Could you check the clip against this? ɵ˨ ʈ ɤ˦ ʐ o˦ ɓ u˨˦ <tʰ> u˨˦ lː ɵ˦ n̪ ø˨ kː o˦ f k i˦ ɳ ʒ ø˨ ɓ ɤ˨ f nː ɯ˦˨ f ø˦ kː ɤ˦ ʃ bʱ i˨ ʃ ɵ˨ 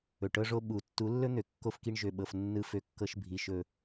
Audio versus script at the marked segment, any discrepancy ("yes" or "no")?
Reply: yes